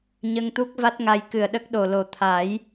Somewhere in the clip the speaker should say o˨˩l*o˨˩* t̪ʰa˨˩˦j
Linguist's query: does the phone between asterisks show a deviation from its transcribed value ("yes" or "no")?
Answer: no